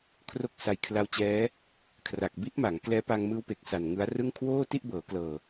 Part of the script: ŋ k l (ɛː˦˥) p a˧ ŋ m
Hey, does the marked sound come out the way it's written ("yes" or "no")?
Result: yes